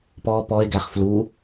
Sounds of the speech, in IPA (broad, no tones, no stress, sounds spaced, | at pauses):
p ɔ p ɔ e̯ ɡ æ χ f l u